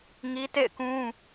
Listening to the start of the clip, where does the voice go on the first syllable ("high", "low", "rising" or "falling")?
high